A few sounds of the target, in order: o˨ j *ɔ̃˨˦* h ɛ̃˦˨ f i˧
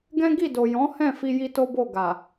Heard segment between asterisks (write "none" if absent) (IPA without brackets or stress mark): ɔ̃˨˦